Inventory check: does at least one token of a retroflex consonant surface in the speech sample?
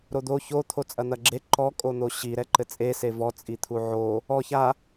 no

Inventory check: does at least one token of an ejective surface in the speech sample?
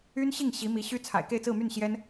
no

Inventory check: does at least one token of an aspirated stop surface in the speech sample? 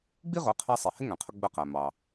yes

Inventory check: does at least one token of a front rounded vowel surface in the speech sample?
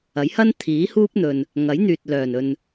yes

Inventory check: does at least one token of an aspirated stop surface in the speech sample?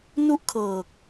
yes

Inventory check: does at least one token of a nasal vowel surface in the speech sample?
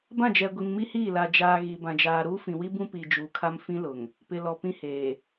yes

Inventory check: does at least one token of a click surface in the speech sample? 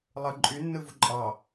yes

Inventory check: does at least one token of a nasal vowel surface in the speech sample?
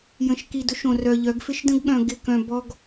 yes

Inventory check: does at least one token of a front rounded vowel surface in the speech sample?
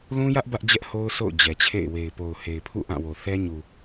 no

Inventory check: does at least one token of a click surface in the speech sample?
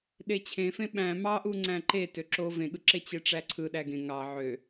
yes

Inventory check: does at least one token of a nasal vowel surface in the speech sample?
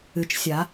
no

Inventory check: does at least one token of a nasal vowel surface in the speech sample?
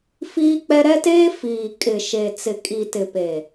no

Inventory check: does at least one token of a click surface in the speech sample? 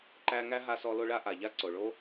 yes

